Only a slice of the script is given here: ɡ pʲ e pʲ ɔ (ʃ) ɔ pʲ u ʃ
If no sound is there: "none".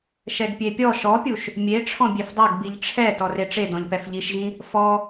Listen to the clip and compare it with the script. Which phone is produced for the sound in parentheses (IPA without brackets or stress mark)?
ʃ